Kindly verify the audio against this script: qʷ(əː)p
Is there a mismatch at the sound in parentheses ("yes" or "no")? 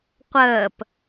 no